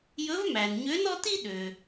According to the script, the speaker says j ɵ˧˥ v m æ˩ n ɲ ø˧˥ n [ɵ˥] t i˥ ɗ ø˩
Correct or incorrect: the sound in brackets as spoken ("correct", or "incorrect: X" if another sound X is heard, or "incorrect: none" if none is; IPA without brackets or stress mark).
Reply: incorrect: ɔ˥